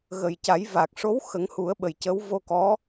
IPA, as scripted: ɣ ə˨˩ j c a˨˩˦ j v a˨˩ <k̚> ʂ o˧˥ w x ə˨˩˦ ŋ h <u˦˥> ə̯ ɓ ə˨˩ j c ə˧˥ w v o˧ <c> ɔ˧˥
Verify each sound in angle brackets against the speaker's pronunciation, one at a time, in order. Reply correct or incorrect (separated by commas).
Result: correct, incorrect, incorrect